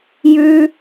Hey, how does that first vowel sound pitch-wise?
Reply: high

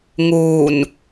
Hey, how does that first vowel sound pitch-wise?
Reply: low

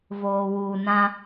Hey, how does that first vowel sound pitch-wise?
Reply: low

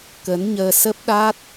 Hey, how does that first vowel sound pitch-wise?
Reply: rising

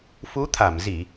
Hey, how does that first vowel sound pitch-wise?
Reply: rising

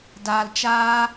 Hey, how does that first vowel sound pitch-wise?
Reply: low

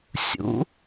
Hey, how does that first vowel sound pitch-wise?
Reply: rising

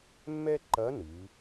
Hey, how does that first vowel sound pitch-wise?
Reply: high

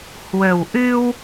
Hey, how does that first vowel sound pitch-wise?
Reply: low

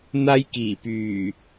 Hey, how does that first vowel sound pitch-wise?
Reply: high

